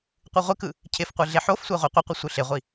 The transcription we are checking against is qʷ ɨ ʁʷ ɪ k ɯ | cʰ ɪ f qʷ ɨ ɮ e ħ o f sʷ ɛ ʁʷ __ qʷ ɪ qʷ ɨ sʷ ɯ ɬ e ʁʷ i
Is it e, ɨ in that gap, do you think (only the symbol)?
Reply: e